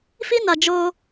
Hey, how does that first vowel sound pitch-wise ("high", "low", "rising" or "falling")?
high